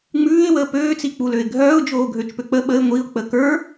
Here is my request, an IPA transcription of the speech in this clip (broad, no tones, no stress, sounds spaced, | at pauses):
ŋ͡m ʉː ɪ̯ w əː p øː t͡s i k͡p u l ø ɪ̯ ɡʱ œː ʊ̯ d͡ʒ oː ɡʱ ø t͡ʃ p ø k͡p ə ɓ ə ɪ̯ ŋʷ i ʊ̯ k͡p ə k ə˞